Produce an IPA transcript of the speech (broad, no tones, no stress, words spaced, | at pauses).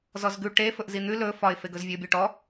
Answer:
zɔzɡʉ ʈe fɵʔzin̪ʉ lɵ fɒɪ̯feɡɵz vʲʉʊ̯bʲɔʈɔ